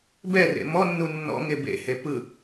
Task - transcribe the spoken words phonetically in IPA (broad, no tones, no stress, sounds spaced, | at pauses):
b ɛ r ḛ m ɔ nː u nː ɔ̰ ŋ e b ḛ h e p ɯ